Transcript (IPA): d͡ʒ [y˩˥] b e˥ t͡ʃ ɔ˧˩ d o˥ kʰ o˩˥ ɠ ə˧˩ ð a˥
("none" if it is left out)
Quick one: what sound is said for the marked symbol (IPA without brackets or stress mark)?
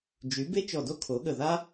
y˩˥